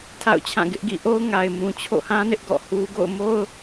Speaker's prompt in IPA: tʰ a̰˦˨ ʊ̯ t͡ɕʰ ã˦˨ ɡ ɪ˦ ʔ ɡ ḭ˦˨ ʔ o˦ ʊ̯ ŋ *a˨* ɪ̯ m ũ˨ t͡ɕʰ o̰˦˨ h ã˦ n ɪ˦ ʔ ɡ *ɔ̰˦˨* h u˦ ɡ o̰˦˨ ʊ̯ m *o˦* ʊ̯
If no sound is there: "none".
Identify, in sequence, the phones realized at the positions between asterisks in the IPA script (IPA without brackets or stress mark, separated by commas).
a˨, ɔ̰˦˨, o˦